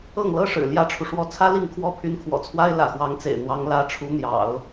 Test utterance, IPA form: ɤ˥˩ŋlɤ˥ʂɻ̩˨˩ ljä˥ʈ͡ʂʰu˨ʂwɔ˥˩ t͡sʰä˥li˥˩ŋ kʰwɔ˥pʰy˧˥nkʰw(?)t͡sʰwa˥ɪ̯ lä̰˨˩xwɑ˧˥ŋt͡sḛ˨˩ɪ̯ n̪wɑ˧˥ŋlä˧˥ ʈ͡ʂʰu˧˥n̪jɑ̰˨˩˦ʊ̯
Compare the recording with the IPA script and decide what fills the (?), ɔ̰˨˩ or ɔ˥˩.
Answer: ɔ̰˨˩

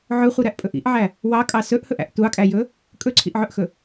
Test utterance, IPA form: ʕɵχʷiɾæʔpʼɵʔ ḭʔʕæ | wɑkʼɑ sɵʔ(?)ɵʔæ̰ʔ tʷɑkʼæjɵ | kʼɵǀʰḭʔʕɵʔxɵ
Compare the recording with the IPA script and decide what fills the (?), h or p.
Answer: h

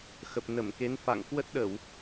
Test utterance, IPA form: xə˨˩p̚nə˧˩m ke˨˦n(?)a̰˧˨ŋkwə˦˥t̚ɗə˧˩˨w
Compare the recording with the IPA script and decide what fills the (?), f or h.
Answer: f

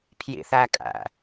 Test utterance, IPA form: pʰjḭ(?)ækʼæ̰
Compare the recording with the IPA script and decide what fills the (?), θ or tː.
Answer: θ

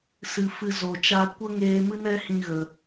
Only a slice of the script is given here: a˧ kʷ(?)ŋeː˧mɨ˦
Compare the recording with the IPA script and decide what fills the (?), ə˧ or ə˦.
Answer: ə˦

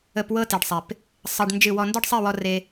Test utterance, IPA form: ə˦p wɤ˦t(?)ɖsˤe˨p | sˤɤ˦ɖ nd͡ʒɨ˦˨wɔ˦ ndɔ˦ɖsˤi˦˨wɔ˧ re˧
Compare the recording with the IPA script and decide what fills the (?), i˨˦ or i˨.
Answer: i˨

